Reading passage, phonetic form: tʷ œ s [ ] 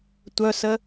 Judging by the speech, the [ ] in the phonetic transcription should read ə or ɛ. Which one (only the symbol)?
ə